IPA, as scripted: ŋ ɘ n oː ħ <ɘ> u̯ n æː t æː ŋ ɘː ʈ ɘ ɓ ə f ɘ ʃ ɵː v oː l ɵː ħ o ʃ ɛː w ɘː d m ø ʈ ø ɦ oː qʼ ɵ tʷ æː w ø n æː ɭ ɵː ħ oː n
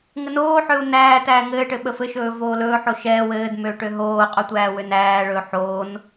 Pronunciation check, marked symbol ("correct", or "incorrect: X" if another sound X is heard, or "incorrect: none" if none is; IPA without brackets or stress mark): incorrect: ø